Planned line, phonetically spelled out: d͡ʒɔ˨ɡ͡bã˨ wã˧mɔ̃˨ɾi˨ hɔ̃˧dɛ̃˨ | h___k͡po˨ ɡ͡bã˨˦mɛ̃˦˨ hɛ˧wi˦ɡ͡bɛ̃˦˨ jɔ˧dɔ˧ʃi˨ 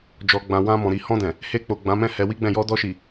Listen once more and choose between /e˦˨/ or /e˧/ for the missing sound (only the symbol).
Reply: e˧